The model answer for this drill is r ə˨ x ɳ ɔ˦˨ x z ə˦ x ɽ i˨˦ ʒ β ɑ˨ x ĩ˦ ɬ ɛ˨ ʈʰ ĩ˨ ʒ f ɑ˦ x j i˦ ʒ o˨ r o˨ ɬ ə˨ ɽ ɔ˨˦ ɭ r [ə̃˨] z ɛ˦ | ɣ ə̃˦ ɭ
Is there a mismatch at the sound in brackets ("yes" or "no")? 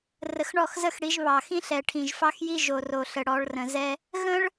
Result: no